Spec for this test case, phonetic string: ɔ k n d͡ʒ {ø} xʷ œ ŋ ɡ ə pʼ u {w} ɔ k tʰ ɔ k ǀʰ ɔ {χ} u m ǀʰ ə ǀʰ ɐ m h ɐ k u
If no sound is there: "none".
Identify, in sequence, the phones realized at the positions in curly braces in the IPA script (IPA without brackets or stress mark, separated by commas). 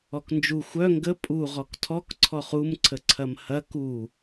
u, ʁ, χ